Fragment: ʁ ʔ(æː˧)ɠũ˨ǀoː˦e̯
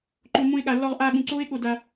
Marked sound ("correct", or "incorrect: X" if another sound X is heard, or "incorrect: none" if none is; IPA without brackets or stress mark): incorrect: aː˧